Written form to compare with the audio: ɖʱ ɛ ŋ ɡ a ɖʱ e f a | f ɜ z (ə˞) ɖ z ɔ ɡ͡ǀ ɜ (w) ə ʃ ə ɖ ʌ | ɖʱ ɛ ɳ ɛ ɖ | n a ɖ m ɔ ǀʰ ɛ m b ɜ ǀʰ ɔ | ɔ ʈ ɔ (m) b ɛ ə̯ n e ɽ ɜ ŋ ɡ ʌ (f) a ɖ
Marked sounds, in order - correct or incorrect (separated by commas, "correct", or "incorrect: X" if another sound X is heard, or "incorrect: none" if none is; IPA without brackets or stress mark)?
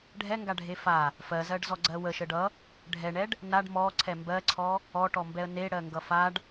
incorrect: ɜ, correct, correct, correct